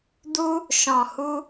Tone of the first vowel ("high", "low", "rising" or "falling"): high